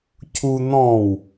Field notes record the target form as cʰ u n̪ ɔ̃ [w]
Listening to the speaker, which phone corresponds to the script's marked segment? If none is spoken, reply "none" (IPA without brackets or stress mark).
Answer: w